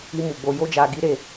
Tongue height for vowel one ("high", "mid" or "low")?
high